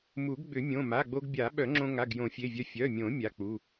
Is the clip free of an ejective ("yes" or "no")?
yes